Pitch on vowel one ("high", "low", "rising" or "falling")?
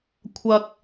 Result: low